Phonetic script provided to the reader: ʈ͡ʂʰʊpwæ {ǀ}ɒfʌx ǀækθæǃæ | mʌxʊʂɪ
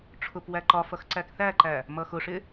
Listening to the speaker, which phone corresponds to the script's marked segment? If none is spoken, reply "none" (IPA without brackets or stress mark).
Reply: ǃ